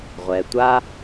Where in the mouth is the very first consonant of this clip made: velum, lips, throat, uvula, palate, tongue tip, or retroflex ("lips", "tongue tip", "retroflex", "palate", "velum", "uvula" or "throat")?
uvula